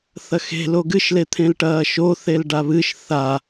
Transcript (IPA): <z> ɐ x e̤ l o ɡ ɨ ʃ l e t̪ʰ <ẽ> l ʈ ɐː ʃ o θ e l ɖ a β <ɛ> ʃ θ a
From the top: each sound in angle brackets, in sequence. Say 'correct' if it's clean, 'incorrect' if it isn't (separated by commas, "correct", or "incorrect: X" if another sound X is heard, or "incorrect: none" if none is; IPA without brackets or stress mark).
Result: incorrect: θ, correct, incorrect: ɨ